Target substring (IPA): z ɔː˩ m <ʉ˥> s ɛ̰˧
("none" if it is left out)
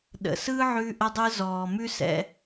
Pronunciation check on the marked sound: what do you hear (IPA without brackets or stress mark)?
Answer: ʉ˥